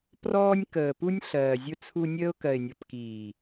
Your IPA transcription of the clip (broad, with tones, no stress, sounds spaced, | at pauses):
p r ɔː˧ nʲ k əː˨ p u˧ nʲ ɬ ɜː˨ zʲ ʊ˧ t͡sʰ u˧ nʲ əː˧ ʊ̯ k ɜ˨ ɪ̯ nʲ ɔ˨ p k iː˨